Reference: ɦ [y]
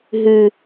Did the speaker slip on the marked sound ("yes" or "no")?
no